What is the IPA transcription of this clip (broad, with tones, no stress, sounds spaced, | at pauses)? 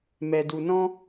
m ɛ˨ d u˨ n ɔ̃˦